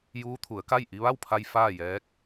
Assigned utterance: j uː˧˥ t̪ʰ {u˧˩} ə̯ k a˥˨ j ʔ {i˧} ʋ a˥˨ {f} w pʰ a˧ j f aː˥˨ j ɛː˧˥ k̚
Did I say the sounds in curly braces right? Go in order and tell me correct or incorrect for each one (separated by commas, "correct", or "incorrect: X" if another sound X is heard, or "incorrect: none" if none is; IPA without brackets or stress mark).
incorrect: u˩˧, correct, incorrect: none